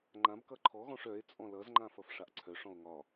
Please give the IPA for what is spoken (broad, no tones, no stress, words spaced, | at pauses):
ŋ͡ǃãb kʌǃʰɔɣɔ̃ʂ œe̯ t͡sʼɔ̃lʌzŋ͡ǃã fʌfʂaʔǀʰœʂɔ̃o̯ ŋɒ